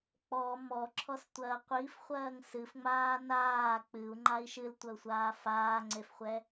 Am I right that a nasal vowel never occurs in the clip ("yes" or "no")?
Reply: yes